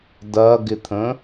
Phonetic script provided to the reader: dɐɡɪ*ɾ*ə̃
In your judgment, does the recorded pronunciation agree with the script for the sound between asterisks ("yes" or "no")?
no